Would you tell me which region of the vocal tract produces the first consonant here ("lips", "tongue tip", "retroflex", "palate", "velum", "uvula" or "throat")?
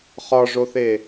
uvula